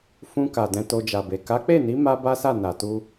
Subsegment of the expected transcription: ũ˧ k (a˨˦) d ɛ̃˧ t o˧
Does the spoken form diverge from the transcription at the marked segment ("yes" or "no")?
yes